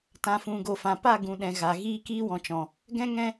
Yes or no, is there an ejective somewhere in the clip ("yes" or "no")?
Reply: no